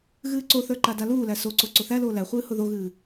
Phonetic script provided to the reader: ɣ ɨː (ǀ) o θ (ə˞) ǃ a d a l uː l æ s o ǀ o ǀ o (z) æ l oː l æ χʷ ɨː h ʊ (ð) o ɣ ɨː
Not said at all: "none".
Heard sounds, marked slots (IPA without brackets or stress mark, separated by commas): ǀ, ə˞, θ, ð